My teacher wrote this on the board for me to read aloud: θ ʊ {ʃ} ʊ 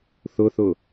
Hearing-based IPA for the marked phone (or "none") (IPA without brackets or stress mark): θ